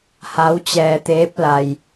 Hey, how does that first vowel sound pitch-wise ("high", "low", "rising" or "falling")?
rising